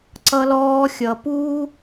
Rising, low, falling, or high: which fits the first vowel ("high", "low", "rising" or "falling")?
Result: low